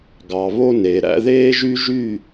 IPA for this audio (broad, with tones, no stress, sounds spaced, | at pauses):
ɡ ɑ˨ β o˦ n e˨ ɾ æ̰˦ ð eː˦ ʒ y˦ ʒ y˦˨